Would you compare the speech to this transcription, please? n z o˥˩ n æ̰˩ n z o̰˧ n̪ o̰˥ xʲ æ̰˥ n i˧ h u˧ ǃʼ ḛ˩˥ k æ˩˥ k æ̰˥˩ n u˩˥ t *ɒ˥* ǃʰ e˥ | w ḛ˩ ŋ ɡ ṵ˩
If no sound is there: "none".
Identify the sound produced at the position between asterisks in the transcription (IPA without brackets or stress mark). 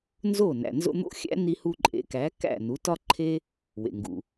ɒ˥